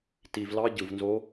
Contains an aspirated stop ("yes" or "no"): no